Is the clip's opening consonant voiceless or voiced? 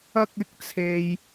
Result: voiceless